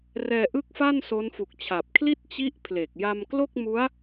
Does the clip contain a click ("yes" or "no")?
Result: no